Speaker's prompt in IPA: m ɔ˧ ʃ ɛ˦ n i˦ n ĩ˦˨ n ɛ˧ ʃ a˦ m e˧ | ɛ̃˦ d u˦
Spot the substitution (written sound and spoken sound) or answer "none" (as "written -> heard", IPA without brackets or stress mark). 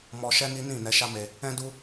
none